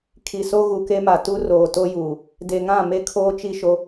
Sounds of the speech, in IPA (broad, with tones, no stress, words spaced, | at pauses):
kʰi˨so˦ ɣu˨ke˦ma˨ tu˦ roː˨to˦juː˨ | de˨ŋã˦˨me˦ kʰoː˦t͡ʃi˦ʃo˦